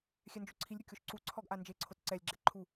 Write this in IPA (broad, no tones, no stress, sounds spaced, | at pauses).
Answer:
xʲ ɛ n d͡ʒ o ǀʰ i lʲ ɾʲ o kʲ o ʃ ǀ u ǀʰ ɔ ɡ ʔ a n d͡ʒ e ǀʰ o t ǀ ɛ lʲ ɡ͡ǁ ɛ ǃʰ u